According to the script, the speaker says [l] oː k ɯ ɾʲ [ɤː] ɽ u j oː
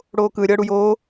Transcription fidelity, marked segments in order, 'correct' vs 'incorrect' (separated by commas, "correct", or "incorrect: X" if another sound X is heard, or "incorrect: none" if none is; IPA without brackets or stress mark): incorrect: ɽ, correct